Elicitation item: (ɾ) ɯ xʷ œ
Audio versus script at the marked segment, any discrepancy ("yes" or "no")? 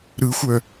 no